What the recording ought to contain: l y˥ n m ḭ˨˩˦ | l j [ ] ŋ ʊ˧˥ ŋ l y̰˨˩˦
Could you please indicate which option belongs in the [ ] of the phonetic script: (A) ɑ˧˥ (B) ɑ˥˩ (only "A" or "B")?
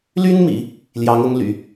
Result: A